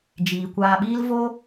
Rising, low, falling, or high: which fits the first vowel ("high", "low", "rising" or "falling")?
low